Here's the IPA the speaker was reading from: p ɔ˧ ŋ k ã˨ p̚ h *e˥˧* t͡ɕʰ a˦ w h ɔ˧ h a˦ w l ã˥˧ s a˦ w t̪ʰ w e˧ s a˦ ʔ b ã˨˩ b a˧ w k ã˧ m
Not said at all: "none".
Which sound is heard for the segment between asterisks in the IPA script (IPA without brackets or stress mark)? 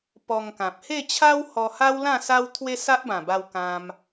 e˥˧